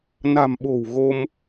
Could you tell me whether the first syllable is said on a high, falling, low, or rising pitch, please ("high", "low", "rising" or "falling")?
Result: low